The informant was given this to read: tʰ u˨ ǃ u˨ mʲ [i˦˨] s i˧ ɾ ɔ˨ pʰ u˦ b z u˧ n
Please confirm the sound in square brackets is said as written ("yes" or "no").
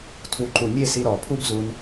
no